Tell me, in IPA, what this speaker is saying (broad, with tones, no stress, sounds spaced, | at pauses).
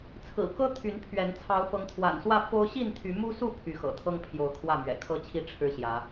t͡sʰ ɹ̩˨˩ k ɤ˦ t̪ʰ y˨˦ n pʰ ɥ ɛ˨˦ n t͡sʰ ɑ˨˦ ʊ̯ f ɤ˨˦ ŋ t̪ʰ w a̰˨˩ n s w ä˥˨ f o˦ ʊ̯ ɕ i˥˨ n t̪ʰ y˨˦ m u˦ s u˥˨ pʰ y˨˦ x ɤ̰˨˩ t̪ʰ ɤ˦ ŋ pʰ j o˨˦ ʊ̯ kʰ w ä˥˨ m ɥ ɛ̰˨˩ kʰ ɤ˦ t͡ɕʰ i˥˨ ʈ͡ʂʰ ɻ̩˦ ɕ j ä˨˦